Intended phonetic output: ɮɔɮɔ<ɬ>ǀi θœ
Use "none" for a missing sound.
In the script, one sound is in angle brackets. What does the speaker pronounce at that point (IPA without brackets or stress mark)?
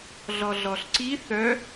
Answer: ɬ